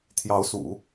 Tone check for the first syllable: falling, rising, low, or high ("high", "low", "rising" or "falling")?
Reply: rising